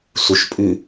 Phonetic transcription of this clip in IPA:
s u ʃ pʼ ʉ

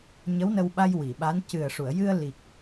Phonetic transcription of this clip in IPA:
ɲ ə˧˥ w n ə˧ w ɓ a˧ j w i˨˩˨ ɓ a˧˥ n c ɨ˨˩ ə̯ ʂ u˨˩˨ ə̯ j ɨ˧ ə̯ l i˨˩ k̚

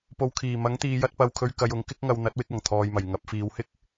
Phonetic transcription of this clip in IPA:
p o˨ w kʰ iː˨˩ m ɐ˨˥ ŋ t̪ iː˨ j ɐ˥ t̚ p ɐ˧ w kʰ ɵ˧ ɥ k ɐ˨˧ j ʊ˨˧ ŋ k ɪ˥ k̚ ŋ ɐ˨˧ w n̪ ɐ˨˥ t̚ w ɪ˧ k̚ ɐ˨˩ ŋ t̪ʰ ɔː˨ j m ɐ˨˩ j ŋ ɐ˨˥ p̚ f iː˨˧ w h ɪ˥ k̚

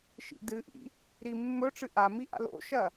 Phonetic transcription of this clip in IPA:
ʃ ḭ d ɨ ʔ ḭ | ɾ i mː ɵ ʈ͡ʂ ɨ ʔ a m i ʔ a̰ l o̰ ʃ ɐ

